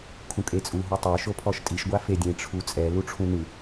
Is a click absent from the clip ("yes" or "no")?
yes